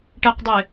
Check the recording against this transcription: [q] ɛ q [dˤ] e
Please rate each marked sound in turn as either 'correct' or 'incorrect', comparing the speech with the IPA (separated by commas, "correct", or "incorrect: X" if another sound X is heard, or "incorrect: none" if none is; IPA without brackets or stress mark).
incorrect: ʈ, correct